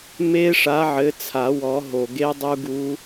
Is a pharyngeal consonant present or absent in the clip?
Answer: present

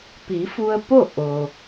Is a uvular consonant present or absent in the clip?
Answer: absent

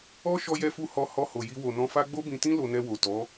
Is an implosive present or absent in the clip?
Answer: absent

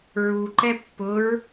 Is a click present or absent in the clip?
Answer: present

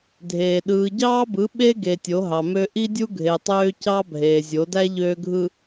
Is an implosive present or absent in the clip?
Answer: present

